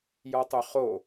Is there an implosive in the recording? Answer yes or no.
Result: no